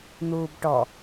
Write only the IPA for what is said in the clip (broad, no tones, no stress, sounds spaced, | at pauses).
n̪ uː b ʈ ɔ